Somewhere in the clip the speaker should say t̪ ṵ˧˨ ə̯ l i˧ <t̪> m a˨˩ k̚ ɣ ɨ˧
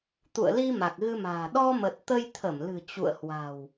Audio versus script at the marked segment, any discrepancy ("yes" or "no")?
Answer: yes